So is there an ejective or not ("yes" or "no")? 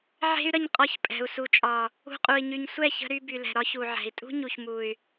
yes